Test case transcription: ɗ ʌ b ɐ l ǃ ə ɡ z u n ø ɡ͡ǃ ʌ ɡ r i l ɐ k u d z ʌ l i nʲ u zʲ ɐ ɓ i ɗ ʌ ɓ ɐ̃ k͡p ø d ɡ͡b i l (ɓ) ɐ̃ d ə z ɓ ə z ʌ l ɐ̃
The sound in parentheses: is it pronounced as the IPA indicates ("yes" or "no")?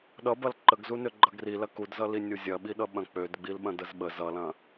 yes